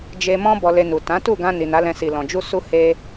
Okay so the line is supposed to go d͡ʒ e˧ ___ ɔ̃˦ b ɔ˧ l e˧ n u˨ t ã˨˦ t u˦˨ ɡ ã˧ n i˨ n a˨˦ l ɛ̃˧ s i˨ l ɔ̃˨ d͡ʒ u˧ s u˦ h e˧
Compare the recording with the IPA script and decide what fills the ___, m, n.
m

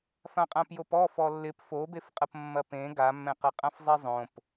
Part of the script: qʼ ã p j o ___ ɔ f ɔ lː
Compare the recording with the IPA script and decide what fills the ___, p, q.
p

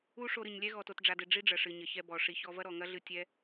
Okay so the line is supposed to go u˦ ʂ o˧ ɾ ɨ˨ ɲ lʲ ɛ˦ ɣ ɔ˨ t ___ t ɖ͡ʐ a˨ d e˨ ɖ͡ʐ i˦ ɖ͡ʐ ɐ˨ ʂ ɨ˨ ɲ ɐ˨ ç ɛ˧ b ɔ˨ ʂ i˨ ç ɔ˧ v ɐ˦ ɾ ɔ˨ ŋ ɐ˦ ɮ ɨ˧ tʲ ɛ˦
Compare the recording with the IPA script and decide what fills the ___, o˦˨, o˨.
o˨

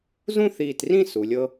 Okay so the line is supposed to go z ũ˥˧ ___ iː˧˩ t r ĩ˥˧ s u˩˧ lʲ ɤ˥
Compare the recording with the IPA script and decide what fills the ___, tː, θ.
θ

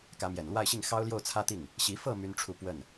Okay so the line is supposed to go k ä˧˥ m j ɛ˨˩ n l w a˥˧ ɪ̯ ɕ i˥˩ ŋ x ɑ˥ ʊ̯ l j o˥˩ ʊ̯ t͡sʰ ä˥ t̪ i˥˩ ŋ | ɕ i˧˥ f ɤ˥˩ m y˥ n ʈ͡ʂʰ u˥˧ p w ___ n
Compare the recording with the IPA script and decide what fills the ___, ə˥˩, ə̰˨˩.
ə˥˩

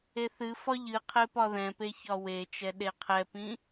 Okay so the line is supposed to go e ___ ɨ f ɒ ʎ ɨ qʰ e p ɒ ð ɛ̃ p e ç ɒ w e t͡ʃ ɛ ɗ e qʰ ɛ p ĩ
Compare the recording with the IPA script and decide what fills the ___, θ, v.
θ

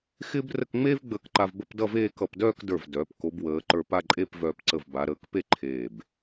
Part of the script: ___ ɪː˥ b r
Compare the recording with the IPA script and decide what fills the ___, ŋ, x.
x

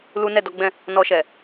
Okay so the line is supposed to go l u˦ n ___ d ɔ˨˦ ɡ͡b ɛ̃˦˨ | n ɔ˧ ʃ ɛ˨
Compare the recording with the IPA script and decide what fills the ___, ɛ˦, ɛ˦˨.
ɛ˦˨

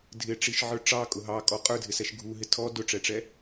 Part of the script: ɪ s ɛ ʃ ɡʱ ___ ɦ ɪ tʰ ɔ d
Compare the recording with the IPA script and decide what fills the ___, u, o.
u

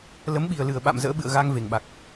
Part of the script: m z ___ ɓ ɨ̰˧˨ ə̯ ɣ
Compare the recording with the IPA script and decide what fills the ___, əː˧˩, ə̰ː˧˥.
ə̰ː˧˥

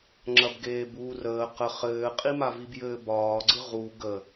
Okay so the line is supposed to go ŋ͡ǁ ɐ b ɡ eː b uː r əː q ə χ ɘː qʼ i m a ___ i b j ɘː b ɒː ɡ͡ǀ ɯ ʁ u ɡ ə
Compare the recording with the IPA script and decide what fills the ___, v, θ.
v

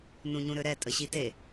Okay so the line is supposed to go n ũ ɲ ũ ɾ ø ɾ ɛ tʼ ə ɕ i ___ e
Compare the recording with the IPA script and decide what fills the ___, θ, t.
t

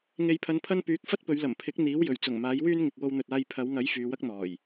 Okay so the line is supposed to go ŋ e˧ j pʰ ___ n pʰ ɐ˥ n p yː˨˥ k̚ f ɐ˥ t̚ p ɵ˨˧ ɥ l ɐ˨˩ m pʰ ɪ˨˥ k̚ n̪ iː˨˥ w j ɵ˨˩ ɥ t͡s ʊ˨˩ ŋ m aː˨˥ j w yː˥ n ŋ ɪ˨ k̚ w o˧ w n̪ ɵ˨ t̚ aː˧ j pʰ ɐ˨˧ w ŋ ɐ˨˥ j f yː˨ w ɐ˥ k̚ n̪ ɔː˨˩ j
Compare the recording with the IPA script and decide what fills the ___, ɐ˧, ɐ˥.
ɐ˧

